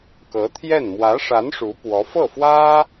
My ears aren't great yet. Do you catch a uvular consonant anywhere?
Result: no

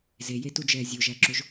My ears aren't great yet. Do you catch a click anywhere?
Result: yes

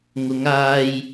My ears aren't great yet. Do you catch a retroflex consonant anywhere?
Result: no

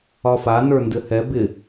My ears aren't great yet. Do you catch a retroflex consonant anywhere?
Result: no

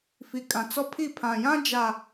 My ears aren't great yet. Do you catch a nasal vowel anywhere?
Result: yes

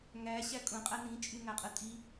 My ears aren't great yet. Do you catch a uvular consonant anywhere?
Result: yes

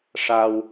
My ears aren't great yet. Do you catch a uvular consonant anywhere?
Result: no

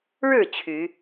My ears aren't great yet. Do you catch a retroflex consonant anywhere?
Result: yes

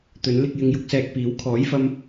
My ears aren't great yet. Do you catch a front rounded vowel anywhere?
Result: no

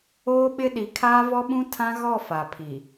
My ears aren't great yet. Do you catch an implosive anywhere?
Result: yes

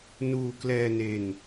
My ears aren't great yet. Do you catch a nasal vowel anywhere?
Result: no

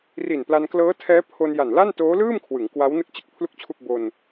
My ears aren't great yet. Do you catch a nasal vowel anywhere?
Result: no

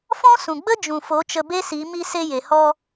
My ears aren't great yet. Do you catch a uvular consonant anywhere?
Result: no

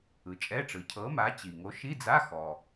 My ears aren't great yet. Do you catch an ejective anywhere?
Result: yes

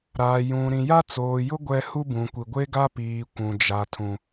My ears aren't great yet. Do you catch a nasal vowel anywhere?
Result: yes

